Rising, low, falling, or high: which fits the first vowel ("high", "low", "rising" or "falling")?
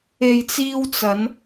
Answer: low